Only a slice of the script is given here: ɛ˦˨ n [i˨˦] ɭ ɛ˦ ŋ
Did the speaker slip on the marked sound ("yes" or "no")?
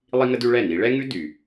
no